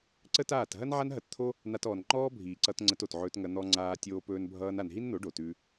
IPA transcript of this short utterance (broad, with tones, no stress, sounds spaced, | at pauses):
ǀ ə˦ t aː˦˨ t ɦ ɐ˦ n ʕ a˦ n ɦ ɐ˧ t t̪ʰ o˦ | n̪ a˧ t ɔː˨ n ŋ͡ǃ ɔː˦ bʱ iː˨ ǀ ʌ˧ t ŋ͡ǀ ə˧ t o˨ t ʕ ɵː˧ t ŋ ɐ˧ n̪ ɔ˧ ŋ͡ǀ aː˧ tʲ oː˧ p ɵː˧ n bʱ ʌː˧ n a˨ n ɦ i˦ n n̪ o˨˦ ɖ o˨ t ʉ˧